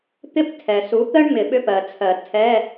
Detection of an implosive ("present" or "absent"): present